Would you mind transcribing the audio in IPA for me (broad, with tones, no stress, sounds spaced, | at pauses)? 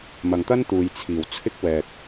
m ɐ˨ ŋ t̪ ɐ˥ n t̪ uː˨ j t͡sʰ iː˨˩ w t͡sʰ ɪ˥ k̚ w ɛː˨ k̚